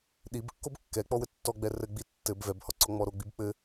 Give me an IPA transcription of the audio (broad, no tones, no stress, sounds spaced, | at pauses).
ɗ i b kː o b kː ɛ k͡p ɔ w ɘ tː ɔ ɡ͡b ɛ r ɘ ɡ͡b i tː ɘ b v ɛ b h ɔ ǀ ɔ ŋ͡m ɔ ɾ o ɡ͡b i b k͡p ɘ